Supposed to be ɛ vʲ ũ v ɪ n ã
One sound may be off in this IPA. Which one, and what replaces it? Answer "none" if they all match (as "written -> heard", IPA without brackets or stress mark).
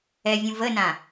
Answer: ɪ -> ə